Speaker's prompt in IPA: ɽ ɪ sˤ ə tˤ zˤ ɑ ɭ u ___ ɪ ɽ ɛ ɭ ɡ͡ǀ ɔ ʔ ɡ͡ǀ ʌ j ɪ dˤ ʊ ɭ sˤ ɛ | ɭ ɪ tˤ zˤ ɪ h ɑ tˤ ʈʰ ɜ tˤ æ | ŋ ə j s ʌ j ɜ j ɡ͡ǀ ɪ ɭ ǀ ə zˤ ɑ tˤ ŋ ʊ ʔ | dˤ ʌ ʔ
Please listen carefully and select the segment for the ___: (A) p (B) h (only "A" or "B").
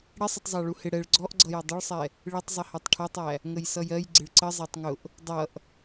B